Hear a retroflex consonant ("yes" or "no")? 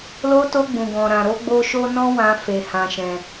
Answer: no